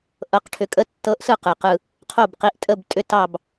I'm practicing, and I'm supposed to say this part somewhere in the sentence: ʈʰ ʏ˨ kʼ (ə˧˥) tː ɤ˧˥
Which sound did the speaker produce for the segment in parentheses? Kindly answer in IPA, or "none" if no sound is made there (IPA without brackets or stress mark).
ə˧˥